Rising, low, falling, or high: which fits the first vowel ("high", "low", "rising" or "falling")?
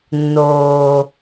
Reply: low